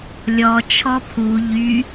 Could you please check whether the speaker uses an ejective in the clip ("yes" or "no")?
no